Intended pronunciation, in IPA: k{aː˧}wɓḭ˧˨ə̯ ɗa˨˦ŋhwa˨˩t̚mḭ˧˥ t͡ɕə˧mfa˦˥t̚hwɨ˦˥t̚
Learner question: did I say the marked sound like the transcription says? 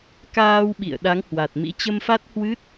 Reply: yes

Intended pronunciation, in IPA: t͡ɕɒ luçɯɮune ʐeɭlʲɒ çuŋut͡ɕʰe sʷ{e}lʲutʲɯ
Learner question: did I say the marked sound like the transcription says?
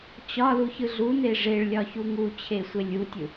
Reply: yes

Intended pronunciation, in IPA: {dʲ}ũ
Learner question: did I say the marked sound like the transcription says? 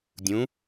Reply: yes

